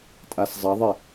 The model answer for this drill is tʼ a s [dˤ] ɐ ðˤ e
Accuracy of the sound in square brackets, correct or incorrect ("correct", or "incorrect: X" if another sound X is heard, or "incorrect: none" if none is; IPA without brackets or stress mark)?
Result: incorrect: zˤ